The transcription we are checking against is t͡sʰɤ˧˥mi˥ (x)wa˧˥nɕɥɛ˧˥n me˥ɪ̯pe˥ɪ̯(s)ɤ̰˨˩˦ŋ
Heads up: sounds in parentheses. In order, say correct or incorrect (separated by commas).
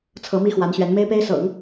correct, correct